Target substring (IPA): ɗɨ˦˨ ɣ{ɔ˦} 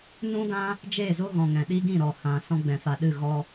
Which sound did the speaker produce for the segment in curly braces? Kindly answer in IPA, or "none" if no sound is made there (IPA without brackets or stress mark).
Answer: ɔ˦